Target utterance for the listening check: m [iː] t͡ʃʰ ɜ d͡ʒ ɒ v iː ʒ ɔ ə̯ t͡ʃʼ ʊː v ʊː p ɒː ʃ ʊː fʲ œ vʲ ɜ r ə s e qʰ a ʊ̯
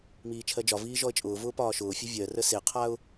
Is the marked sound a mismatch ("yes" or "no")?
no